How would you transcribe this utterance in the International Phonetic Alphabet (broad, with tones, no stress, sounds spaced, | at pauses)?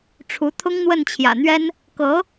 ʈ͡ʂʰ u˧˥ t̪ʰ ʊ˥ ŋ n̪ w ə˥˩ n t͡ɕʰ j ä̰˨˩ n̪ ɥ ɛ˥ n | k ɤ˧˥